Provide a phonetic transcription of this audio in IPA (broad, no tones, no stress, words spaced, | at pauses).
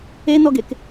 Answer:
enɔɡek